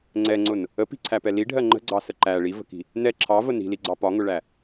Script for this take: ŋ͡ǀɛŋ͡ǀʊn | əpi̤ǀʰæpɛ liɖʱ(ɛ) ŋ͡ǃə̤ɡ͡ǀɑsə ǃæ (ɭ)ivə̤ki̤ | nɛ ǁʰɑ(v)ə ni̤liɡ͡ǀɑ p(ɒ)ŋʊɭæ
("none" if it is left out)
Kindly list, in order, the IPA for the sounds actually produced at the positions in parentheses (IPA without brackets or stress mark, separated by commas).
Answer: ɜ, ɭ, v, ɒ